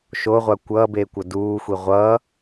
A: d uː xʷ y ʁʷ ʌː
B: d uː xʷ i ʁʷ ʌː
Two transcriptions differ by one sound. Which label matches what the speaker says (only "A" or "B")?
B